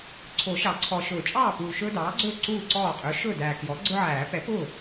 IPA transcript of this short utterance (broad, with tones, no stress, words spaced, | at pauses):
ǀʰo˨˩˦ʃɑ˨˩˦ǀʰɔ˨˩ ʃɵː˨˩˦t͡ʃʼɑː˥˩puː˨˩ ʃɵː˦dɑː˩˥ɡ͡ǀɵː˥˩ ǀuː˥˩ǀɔː˥˩ qʼɵː˩˥ʃɵː˥˩dæː˨˩ kjɔ˩˥ ɡ͡ǀʊ˦ʕæː˨˩˦ pɛ˩˥ pʊː˥˩